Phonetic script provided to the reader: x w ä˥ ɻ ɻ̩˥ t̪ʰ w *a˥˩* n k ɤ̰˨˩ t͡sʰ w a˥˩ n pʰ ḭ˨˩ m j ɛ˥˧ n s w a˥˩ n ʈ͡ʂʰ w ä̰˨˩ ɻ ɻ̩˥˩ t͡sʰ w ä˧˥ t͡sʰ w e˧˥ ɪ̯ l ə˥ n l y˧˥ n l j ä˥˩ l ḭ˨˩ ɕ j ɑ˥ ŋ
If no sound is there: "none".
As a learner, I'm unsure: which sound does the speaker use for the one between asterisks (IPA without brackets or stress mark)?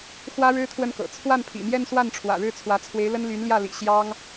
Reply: ə˥˩